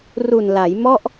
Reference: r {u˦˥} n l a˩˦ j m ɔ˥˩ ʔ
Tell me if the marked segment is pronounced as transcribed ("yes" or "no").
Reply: no